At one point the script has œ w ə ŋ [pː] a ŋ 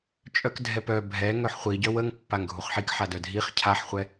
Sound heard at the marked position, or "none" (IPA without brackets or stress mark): pː